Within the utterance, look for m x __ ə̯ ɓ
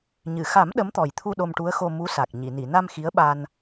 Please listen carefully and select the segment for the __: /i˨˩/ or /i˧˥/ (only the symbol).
i˧˥